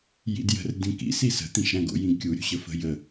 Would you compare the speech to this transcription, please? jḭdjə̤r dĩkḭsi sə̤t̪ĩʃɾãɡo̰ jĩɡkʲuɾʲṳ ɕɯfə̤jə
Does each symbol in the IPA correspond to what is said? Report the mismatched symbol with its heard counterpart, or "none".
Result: ɯ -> ə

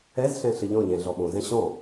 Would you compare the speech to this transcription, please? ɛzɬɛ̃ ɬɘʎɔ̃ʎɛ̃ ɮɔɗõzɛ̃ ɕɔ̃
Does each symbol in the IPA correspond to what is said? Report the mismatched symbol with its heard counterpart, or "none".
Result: ɗ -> ɓ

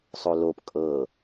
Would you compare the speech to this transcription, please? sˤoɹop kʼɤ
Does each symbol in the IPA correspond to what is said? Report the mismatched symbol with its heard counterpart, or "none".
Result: ɹ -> l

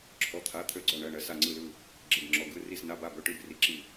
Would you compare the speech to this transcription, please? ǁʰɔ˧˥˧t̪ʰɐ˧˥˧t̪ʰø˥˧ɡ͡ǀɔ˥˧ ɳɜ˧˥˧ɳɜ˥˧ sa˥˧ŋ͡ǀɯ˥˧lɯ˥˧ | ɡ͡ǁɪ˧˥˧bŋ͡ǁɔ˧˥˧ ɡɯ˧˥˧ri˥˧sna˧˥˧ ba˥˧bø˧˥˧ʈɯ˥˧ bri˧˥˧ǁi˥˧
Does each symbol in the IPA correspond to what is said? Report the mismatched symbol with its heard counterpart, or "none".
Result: ɐ˧˥˧ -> a˧˥˧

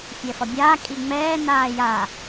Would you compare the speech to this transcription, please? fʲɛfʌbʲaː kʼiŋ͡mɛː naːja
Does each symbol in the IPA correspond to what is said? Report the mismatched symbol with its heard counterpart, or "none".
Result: none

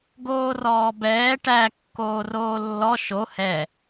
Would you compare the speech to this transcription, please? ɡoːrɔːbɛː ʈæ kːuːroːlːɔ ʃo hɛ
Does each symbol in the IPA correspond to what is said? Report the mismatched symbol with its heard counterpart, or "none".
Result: uː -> oː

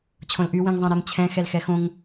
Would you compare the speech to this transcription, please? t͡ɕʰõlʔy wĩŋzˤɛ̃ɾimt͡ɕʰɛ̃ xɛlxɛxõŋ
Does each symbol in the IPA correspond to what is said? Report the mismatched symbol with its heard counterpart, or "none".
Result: none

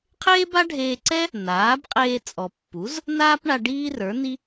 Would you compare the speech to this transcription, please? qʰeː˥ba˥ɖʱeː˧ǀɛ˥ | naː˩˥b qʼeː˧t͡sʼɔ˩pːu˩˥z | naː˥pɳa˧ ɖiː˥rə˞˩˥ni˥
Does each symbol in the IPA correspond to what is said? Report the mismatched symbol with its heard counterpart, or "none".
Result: none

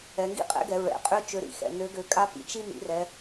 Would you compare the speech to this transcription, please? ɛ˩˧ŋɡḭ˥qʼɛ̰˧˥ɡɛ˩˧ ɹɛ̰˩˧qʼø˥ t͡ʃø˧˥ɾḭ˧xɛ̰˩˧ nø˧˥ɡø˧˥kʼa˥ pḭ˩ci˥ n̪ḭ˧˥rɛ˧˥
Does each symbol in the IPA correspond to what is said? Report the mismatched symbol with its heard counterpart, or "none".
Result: c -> t͡ʃ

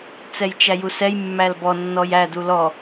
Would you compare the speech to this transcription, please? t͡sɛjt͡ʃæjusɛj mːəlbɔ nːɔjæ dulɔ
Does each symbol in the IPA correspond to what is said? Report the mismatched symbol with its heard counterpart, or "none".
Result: ə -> æ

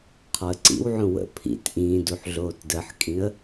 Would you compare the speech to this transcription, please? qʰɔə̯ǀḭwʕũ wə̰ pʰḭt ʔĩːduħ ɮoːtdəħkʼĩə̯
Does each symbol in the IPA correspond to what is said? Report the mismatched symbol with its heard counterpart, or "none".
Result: none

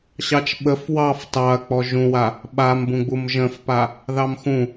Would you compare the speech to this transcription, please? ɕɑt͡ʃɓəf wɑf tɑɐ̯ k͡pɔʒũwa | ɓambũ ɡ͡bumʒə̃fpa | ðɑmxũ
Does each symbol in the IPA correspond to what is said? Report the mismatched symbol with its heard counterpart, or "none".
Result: none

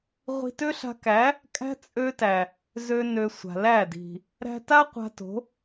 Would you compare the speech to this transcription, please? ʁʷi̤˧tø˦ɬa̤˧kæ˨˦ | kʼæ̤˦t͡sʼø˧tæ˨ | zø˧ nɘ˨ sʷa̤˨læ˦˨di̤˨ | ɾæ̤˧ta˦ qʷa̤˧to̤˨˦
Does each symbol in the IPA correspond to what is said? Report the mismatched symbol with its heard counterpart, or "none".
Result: ɘ˨ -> ø˨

